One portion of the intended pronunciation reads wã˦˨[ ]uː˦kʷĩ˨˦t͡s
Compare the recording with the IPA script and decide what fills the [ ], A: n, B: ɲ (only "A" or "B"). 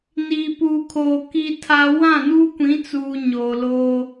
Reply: A